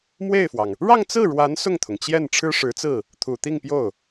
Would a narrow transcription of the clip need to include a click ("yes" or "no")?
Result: no